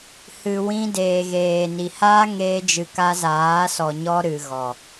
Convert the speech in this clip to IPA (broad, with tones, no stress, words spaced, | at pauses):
hɨ˨wĩ˧ deː˨ɣeː˨ni˨ haː˦ŋeː˧d͡ʒɨ˨ ka˧zaː˨˦sɔ˨ ɲɔ˧ ɾɨ˨ɣɔ˨